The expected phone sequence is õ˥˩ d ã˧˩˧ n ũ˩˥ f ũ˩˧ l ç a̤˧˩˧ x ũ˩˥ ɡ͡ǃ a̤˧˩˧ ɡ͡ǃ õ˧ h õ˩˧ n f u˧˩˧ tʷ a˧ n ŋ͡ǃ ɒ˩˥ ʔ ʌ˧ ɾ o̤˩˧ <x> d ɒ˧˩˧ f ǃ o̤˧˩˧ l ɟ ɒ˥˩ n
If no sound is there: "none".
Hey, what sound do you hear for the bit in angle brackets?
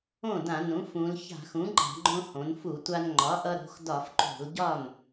x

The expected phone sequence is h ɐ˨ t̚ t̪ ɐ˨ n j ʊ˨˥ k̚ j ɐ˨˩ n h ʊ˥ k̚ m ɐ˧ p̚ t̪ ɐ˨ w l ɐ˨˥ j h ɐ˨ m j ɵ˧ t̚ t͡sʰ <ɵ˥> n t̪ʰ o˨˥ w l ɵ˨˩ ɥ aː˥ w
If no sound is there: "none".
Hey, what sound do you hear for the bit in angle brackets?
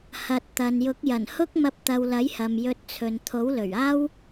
ɵ˨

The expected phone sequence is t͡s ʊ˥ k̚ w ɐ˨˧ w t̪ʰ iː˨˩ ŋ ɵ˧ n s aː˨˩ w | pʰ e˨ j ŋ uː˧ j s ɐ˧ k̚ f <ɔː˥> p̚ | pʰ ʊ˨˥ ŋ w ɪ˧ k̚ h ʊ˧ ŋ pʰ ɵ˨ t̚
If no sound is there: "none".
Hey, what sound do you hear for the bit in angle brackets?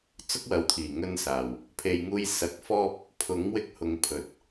ɔː˥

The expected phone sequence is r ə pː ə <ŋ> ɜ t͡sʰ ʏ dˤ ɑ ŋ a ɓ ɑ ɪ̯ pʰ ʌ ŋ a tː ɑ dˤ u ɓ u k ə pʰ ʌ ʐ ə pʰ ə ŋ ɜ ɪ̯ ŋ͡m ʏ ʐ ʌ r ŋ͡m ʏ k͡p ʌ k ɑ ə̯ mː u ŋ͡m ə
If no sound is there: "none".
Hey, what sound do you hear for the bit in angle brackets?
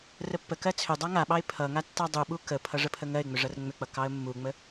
k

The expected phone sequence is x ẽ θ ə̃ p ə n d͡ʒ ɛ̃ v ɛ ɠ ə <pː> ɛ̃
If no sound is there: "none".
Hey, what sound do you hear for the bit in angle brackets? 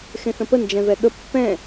pː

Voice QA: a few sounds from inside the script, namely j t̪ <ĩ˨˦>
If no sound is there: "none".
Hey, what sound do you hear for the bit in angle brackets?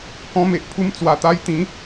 ĩ˨˦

